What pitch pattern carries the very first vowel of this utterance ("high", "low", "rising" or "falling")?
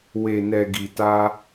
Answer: low